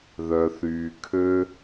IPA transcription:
ð œ˨ θ yː˨ kʰ ø˦

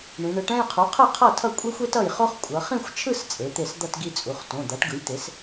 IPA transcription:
ɳ ĩ˩˧ ɳ ɯ˩˥ ʈ ɛ̃˥˧ j qʰ u˩˥ qʰ ɯ˥˩ qʰ ʌ˥˩ tʰ ʌ˥˩ kʷʼ e˥ xʷ e˥ t ʌ˥˩ j χ o˥ χ kʷʼ ʌ˩˧ χ ĩ˥˧ xʷ t͡ʃʰ ɯ˥˧ s t͡sʼ e˩˥ t̪ e˥˩ s d̪ ʌ˥˧ t ɡ i˥˧ t͡sʼ u˩˧˩ χ t õ˩˧˩ d̪ a˩˥ ʈ ɡ ɯ˩˥ j t̪ e˩˥ s

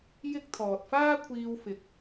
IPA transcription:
j ɪ˥ k̚ t̪ʰ ɔː˨ t̚ f aː˥ kʷʰ iː˧ w f ɪ˨ k̚

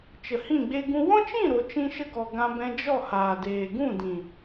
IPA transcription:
t͡ʃ ə˨ h ĩ˦˨ ɡ͡b e˦ ɡ ũ˦ w ɔ̃˦ t͡ʃ ĩ˦˨ ɾ o˨ t͡ʃ ĩ˧ ʃ ə˧ ɡ ɔ˨ ɡ ã˧ b ɛ̃˧ d͡ʒ ɔ˦˨ h aː˨ d eː˨ ɡ ũ˦˨ d ĩ˨

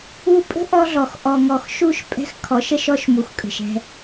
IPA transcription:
u˨ pʼ ə̤˦ ʔ ɔ˦ ɮ ɔ˨ x ʔ ɔ˨ ŋ ɔ˨ x ʃ u˦˨ ʃ pʼ ɛ̤˦ x kʰ ɔ˨˦ ʃ ə˦ ʃ ɔ˦ ʃ m u˨ x kʼ ə̤˨ ʃ ɛ̤˦

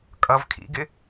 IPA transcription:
kʼ ʌ v kʰ ḭ ɡ ɪ

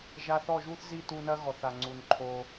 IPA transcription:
ʒ a˧ θ ɔ˦˨ ʒ u˦ θ z i˦˨ t u˧ n ɐ˦ ɣ ɔ˨ θ a˨ ŋ͡ǀ u˨ n ǃʰ o˧

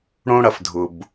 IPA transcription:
ɽ õ˥ ɽ ɐ˩ f dʱ ʊ˩ b

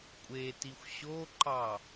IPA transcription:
kʷʼ e t i xʷ ɕ o ǃ ɑ

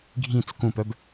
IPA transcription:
ɡʱ ĩ t͡s k ũ p œ b

